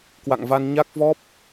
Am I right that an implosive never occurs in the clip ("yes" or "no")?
yes